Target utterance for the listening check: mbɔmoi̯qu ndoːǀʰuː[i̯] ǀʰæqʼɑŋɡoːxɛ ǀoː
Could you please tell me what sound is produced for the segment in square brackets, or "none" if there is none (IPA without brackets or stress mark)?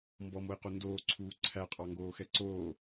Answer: none